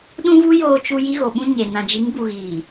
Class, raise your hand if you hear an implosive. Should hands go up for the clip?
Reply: yes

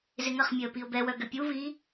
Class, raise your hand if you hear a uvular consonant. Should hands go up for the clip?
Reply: yes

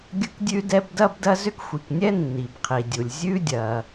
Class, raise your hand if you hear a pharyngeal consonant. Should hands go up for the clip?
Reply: no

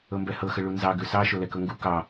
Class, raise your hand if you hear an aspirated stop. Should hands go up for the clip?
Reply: no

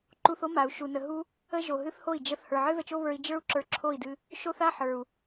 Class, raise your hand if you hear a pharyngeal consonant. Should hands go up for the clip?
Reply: yes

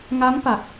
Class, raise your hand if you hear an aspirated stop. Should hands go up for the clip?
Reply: no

